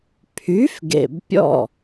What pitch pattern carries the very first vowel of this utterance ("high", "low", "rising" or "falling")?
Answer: rising